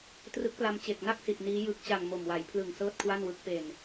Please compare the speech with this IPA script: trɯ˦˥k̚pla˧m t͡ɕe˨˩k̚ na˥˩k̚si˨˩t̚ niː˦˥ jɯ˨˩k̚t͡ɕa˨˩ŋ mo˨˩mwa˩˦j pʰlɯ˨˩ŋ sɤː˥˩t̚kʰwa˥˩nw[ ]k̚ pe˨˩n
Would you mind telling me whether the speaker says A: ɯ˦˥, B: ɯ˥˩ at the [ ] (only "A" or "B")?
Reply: A